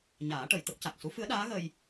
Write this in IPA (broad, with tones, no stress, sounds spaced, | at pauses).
ɲ aː˨˩˦ ʈ ə˨˩˨ j t̪ ə˦˥ k̚ c a˨˩ k̚ s u˧˥ f ɨ˧˥ ə̯ ɗ aː˧˥ ɣ ə˧ j